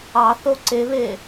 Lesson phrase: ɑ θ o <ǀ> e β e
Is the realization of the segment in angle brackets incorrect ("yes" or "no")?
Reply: no